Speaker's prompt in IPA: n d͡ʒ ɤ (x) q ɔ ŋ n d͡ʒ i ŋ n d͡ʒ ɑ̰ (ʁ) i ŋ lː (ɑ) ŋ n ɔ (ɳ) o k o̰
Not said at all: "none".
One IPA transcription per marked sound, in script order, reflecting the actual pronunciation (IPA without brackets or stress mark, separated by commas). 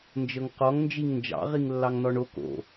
ŋ, ʁ, ɑ, ɳ